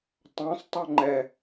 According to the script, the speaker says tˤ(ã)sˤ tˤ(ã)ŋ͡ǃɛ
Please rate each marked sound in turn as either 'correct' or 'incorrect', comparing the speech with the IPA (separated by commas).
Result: correct, incorrect